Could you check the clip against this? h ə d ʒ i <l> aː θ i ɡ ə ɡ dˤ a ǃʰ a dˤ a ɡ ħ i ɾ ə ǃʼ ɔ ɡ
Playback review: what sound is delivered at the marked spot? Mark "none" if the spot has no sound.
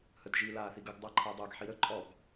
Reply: l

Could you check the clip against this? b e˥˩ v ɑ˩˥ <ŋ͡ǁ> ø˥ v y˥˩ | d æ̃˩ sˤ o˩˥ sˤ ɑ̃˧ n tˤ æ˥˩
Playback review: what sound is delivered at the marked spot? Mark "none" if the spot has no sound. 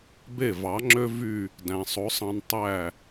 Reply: ŋ͡ǁ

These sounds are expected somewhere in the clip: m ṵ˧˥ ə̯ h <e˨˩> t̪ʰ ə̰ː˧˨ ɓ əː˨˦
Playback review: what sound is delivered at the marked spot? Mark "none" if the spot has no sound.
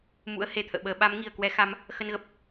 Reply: e˨˩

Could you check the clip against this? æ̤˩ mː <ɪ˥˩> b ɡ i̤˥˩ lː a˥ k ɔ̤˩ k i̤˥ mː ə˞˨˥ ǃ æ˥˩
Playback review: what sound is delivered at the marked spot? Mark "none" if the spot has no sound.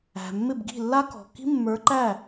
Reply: ɪ˥˩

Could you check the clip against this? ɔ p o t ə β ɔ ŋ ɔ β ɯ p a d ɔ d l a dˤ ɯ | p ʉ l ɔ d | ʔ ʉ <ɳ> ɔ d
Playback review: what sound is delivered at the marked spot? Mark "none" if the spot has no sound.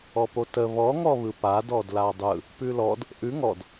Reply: ŋ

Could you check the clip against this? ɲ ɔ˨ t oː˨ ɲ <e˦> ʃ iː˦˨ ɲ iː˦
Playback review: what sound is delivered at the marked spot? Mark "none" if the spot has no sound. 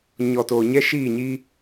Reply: ɛ˦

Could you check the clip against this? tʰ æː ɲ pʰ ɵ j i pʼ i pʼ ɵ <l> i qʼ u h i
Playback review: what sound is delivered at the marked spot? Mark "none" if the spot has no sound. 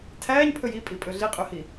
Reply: ɮ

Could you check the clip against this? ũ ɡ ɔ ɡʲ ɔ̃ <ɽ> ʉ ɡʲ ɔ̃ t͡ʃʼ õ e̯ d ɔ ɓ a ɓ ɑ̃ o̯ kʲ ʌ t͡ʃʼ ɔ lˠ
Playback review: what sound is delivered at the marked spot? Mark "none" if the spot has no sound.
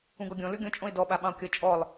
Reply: l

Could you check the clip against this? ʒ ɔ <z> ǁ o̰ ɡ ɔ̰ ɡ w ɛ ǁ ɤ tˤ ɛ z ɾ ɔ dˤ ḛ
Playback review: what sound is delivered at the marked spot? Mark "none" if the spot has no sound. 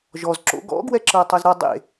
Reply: z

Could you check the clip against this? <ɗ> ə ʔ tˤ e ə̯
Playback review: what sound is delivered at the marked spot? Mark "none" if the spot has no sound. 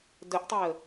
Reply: d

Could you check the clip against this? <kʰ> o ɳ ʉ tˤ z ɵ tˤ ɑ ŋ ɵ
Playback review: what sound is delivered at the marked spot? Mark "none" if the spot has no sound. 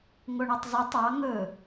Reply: ŋ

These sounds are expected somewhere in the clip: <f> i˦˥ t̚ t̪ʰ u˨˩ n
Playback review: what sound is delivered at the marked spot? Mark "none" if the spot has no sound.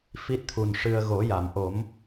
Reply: f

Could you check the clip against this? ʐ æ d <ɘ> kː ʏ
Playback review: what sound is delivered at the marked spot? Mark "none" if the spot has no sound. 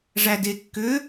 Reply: e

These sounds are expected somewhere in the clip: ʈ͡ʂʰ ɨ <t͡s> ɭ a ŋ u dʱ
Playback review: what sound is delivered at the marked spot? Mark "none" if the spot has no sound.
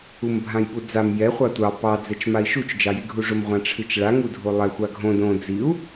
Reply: t͡ʃ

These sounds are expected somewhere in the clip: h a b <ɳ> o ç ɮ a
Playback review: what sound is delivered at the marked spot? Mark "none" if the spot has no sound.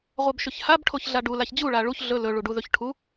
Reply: ʈʰ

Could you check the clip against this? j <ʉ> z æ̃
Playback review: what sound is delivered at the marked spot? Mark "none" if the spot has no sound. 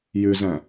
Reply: ʉ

